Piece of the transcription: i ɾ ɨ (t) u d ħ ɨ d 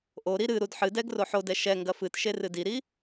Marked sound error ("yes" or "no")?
yes